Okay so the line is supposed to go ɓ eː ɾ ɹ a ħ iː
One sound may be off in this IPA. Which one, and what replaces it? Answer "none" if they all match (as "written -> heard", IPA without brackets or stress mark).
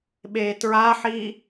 ɾ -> t